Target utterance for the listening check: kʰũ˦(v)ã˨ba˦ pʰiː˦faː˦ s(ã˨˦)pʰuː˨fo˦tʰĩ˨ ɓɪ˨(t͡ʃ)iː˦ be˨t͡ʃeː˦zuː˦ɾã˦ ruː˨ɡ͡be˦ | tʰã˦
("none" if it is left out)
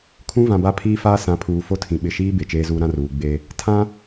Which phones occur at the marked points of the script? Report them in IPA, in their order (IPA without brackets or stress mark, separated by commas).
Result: v, ã˨˦, ʃ